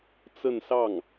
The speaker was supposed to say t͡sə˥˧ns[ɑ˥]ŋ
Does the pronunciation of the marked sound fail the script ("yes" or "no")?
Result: yes